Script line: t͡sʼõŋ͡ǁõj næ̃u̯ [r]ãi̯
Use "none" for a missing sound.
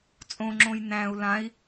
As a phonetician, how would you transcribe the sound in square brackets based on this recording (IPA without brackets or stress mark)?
l